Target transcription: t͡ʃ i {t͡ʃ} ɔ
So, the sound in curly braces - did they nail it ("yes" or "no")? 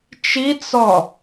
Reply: no